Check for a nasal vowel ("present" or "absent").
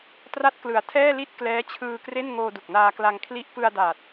absent